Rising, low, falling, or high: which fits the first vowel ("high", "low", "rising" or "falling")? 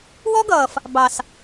high